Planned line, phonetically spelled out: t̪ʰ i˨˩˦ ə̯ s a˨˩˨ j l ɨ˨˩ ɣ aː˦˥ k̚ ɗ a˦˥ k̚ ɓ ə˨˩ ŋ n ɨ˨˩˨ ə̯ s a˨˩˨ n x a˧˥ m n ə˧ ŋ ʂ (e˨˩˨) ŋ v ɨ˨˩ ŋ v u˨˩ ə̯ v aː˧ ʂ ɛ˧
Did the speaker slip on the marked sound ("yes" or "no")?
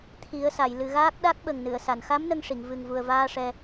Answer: yes